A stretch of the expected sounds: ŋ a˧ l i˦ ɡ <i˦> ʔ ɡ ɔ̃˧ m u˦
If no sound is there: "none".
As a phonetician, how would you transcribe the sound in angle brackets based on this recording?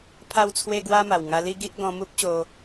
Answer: i˦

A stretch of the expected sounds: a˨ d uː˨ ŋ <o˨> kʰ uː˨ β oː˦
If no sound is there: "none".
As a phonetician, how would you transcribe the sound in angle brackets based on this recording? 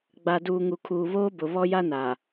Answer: u˨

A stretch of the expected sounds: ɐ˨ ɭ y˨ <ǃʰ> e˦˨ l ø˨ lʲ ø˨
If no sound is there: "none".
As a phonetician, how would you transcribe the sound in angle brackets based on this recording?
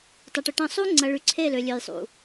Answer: ǀʰ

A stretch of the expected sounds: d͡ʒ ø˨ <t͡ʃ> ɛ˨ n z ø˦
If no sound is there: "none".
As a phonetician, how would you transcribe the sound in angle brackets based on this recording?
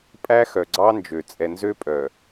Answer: t͡sʼ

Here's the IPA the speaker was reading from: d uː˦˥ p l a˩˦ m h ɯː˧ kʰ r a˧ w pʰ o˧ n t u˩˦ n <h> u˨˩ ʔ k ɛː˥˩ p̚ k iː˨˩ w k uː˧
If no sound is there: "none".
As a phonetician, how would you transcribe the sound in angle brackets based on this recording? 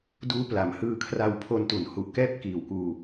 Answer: h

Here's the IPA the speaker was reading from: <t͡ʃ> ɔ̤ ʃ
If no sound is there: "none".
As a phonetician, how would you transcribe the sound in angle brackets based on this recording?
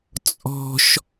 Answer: t͡sʼ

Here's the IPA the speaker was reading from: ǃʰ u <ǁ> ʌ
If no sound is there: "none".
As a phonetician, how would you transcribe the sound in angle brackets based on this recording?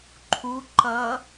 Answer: ǃ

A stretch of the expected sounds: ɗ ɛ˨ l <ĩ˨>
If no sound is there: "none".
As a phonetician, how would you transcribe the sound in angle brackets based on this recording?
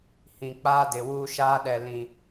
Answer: ĩ˨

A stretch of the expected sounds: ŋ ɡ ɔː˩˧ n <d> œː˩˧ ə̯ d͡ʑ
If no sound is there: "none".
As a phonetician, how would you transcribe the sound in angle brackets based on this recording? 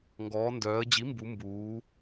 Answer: d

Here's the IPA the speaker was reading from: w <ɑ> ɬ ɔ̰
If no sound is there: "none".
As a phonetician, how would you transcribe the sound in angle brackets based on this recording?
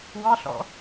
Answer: ɑ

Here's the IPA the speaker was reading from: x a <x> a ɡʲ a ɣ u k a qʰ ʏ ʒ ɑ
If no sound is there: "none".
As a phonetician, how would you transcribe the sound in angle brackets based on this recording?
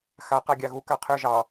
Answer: q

